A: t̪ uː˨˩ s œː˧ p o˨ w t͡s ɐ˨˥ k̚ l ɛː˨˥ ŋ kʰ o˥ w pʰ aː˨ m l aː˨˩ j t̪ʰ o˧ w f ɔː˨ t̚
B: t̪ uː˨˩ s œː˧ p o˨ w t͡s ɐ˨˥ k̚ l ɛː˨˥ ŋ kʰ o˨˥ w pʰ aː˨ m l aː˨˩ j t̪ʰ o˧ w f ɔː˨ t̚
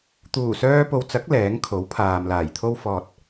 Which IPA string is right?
B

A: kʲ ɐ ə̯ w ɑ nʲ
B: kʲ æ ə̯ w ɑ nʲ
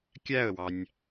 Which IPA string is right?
B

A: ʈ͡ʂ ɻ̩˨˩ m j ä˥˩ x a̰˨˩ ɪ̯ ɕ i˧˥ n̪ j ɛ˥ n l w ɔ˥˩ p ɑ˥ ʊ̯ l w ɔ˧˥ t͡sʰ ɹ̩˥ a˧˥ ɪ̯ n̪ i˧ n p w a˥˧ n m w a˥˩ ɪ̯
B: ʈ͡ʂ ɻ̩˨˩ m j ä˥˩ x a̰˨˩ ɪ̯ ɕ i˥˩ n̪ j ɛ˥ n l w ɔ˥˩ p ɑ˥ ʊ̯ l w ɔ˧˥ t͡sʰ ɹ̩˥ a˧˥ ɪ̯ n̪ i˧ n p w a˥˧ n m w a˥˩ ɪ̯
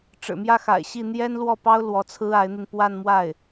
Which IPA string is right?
B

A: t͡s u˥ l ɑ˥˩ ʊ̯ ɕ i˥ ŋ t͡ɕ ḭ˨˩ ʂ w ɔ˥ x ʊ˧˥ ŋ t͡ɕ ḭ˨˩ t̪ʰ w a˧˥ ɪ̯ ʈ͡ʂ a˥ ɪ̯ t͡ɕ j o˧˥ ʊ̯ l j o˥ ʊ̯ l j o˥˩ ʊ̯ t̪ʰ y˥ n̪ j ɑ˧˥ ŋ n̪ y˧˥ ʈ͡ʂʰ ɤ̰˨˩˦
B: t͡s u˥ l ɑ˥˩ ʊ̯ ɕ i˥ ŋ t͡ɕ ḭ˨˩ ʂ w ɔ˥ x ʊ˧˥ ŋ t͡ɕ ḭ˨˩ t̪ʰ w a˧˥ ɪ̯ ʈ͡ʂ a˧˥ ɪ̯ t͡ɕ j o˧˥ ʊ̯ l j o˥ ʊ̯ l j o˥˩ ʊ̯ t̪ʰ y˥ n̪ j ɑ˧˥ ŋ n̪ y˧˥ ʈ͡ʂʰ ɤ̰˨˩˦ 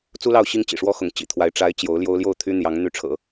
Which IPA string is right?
B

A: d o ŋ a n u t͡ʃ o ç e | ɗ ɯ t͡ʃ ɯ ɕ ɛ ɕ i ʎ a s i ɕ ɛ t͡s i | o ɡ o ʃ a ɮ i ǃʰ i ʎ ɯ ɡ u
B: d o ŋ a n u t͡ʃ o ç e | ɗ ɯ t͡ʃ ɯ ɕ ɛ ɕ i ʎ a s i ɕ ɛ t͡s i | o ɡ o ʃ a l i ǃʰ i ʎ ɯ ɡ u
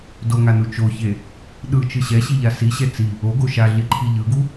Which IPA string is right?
A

